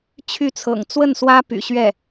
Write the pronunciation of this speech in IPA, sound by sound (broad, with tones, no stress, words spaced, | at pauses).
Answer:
t͡ɕʰy˥˩t͡sʰɤ̰˨˩ŋ t͡swə˥˩nswä˥ py̰˨˩ɕɥɛ˥˩